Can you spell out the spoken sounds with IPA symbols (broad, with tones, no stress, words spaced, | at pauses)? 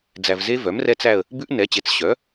d͡zæ˨vze˦˥ vœ˩˥mrɛ˦˥t͡sæ˦˨ə̯ | bʉ˦˥ʔnɛ˩˥t͡ɕe˩˥t͡s ɕœ˩˥